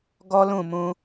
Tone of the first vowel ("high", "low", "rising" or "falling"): high